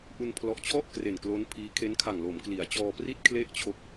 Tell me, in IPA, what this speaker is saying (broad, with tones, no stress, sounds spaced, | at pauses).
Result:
ʔ u˧ n pʰ l ɔ˨˩ ʔ t͡ɕʰ ɔ˥˩ ʔ k r e˨˩ n k l o˦˥ n pʰ iː˦˥ kʰ e˦˥ n kʰ a˨˩ ŋ l o˩˦ m k l i˩˦ a̯ t͡ɕ ɔː˧ p r i˥˩ t̚ kʰ l e˥˩ ʔ t͡ɕʰ o˦˥ k̚